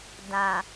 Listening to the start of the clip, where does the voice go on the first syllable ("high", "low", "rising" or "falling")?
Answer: low